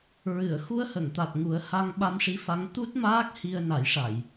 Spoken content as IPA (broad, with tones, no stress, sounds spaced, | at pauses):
ɹ ɨ˨˩˨ ə̯ x u˧ ə̯ h ə˨˩˨ ŋ t̪ a˨˩ t̚ ŋ u˨˩˦ ə̯ h a˧ ŋ ɓ a˧ m ʂ i˧˥ f a˧˥ ŋ t̪ u˦˥ t̚ m aː˦˥ k̚ h i˧ ə̯ n a˨˩˦ j ʂ a˨˩˨ j